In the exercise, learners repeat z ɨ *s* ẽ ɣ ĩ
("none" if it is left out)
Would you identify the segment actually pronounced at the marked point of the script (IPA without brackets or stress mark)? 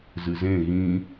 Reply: z